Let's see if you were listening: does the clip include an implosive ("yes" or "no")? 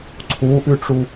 no